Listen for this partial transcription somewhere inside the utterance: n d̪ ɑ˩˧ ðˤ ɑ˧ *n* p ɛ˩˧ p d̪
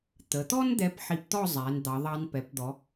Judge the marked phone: correct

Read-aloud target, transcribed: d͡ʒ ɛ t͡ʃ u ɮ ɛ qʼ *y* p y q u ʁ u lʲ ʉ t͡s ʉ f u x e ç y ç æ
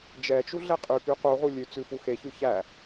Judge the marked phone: correct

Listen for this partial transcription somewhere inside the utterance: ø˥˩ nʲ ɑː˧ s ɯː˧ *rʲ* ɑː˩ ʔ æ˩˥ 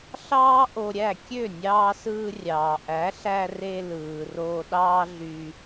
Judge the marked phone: correct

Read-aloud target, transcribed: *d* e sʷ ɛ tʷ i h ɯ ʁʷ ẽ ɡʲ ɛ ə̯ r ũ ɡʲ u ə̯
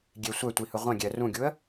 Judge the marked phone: incorrect: ɡʲ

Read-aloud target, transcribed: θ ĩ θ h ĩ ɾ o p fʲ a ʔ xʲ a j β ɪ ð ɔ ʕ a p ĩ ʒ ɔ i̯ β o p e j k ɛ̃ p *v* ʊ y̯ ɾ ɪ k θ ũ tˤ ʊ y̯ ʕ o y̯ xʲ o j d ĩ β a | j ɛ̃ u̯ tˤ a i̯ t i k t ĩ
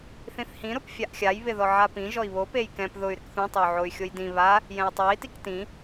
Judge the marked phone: incorrect: ð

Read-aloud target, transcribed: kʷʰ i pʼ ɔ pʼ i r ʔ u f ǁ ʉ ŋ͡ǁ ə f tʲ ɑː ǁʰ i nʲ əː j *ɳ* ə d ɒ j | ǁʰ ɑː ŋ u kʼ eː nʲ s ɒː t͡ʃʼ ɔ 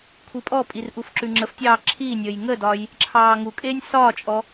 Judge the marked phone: incorrect: ŋ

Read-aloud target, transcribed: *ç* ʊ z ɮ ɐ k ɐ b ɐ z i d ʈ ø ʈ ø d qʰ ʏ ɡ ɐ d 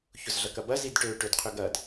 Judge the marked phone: correct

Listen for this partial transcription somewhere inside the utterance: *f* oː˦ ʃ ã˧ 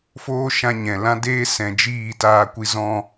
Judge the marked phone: correct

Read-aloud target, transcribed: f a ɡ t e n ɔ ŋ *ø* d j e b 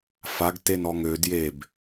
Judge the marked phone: correct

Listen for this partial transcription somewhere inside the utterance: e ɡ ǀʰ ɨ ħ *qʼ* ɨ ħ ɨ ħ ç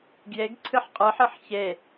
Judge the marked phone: correct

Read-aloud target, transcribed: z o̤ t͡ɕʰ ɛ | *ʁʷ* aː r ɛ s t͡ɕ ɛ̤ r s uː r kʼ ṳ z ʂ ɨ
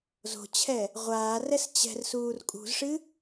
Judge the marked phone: correct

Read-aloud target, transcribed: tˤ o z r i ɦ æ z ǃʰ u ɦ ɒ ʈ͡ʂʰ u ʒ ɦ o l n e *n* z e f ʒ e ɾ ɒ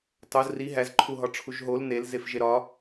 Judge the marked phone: incorrect: l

